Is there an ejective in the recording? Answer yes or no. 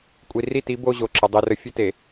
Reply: yes